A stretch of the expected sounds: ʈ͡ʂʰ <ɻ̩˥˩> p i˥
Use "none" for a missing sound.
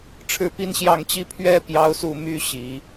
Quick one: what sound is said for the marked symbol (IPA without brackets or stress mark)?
ɻ̩˥˩